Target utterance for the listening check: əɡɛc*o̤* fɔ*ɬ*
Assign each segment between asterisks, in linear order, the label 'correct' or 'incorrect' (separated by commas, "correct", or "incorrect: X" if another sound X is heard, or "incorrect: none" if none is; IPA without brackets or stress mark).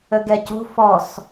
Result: correct, incorrect: s